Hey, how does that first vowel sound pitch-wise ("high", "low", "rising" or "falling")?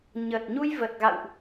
low